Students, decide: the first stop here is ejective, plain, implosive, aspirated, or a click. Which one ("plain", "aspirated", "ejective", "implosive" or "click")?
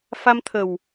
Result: aspirated